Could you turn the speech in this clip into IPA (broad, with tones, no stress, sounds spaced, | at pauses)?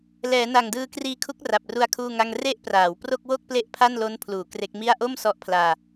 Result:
l ɛː˩˦ n a˨˩ ŋ d ɯː˧ k r iː˧ kʰ u˦˥ k̚ r a˨˩ p̚ r u˧ a̯ kʰ uː˥˩ ŋ a˥˩ ŋ r e˦˥ ʔ p r aː˩˦ w p r o˥˩ k̚ w o˥˩ k̚ p l e˥˩ ʔ pʰ a˥˩ n l o˦˥ n pʰ l uː˩˦ k r e˦˥ k̚ m i˥˩ a̯ ʔ o˥˩ m s ɔ˦˥ ʔ pʰ l aː˧